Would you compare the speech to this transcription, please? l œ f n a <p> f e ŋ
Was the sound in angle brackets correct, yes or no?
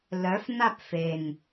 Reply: yes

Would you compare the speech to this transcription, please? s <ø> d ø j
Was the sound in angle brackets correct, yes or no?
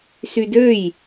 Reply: no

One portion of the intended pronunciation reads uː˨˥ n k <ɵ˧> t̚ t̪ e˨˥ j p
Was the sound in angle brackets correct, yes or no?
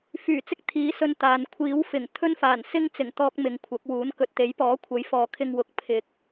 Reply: no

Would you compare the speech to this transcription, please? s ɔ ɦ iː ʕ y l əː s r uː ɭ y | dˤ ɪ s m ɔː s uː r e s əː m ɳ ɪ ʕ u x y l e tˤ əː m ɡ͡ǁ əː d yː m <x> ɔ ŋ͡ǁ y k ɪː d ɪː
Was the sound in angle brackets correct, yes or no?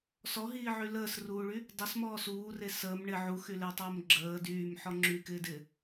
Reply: no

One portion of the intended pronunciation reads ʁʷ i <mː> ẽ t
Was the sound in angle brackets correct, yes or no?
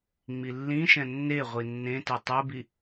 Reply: no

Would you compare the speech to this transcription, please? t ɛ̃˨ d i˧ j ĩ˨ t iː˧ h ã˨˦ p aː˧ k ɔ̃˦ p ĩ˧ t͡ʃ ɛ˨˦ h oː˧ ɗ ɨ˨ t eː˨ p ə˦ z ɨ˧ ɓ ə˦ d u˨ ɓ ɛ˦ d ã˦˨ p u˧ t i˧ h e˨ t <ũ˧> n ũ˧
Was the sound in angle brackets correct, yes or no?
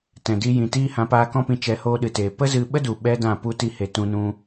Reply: yes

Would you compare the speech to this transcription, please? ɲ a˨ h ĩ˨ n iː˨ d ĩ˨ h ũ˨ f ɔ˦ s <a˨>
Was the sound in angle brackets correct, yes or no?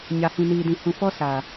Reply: yes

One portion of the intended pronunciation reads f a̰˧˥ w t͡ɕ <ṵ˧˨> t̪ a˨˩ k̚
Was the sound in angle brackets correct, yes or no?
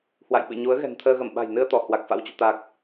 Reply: yes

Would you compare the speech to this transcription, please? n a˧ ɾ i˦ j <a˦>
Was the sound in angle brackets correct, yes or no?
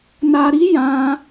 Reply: no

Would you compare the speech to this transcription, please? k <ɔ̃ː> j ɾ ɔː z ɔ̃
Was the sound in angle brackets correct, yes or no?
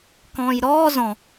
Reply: yes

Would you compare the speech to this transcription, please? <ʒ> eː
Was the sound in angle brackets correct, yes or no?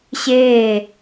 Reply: no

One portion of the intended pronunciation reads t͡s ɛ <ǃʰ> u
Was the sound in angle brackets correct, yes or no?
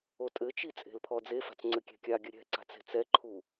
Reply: yes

